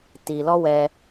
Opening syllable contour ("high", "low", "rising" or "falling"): low